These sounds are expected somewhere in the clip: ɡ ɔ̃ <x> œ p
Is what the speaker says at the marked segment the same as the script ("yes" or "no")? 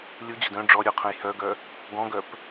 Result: no